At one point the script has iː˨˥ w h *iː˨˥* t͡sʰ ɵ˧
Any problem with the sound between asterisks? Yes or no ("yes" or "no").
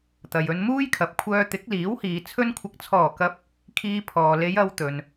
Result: yes